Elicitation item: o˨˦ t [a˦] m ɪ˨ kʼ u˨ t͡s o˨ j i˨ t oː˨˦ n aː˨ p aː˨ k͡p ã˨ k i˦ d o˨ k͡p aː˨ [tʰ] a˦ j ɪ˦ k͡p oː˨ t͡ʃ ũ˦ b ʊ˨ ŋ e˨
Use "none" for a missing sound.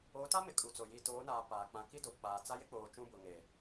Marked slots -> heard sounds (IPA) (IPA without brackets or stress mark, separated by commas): a˦, t͡s